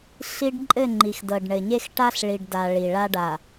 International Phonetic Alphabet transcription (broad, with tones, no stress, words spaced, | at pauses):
ɬi˦ɖ ǃʼɘ˦˨ŋ͡ǃi˨xdɤ˨ɖɳɘ˨ ɲe˦xʈa˦ɬɭi˨ɖda˨ ɭi˨ɭa˦ ɖa˨